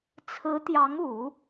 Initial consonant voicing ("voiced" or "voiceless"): voiceless